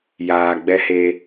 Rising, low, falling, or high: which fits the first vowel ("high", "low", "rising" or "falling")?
low